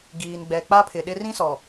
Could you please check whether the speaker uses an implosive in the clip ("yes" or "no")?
yes